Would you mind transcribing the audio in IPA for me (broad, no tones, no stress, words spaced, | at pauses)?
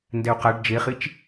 ndɛu̯qaɖ d͡ʒeχit͡ʃ